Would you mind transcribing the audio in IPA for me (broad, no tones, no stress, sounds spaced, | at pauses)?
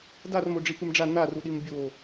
d a r m o ɖ͡ʐ i p ɨ m ɖ͡ʐ a n a r u ɗ i m bʲ o